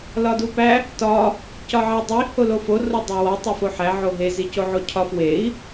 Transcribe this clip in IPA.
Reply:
lɒdupæ | tɒ | cɒʕædˤi holofo rodˤæwɒ tˤæfoħæ ʕoɦe zicoʕocʰɒf wei̯

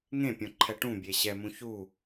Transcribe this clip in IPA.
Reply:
ŋẽpʲõǃʰɛ ʈũbʲe ɕɛmũ çu

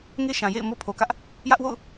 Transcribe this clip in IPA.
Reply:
ŋe˦ʃã˨jḛ˦˨ɪ̯ mo˦pʰo˨kä˦ʔ | jä˦ʔwo̰˦˨ʊ̯

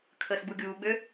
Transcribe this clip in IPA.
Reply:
kʰəːsɡ͡buɡʲuːɡ͡bø

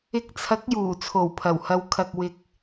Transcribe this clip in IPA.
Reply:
ɪ˧k̚t͡sʰɐ˨˥k̚ juː˨˩t͡sʰo˨˩wpʰɐ˨˩w hɐ˨wkʰɐ˨k̚ wɪ˧k̚

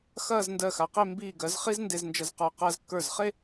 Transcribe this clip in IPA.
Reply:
xɐː˥˧zndɜ˧˩xa˩˧qe˥˧ mbiː˧˩ɡɜ˩˧z χi˥znde˧znd͡ʒɐ˧z qə˞˧˩ qɐː˧zkːə˞˧˩zχe˥˧

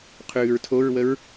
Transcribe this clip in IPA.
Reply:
qʰʉːɹtʰoɹwəɹ

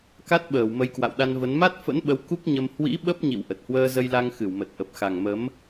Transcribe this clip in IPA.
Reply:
ka˦˥t̚ɓəː˧˩w mə˨˦jkwa̰˧˨wɗa˧nvə˨˦n ma˦˥t̚fə̰˧˥nɓə˨˦w ku˦˥k̚ɲə˧m hwḭ˧˥ ɓə˦˥p̚ɲḭ˧˨w ʔə˨˩t̚hwəː˧zə˧jla˧ŋ xɨ˧˩wmə˨˩t̚ ʔə˨˩p̚xa˨˩ŋmə˨˦m

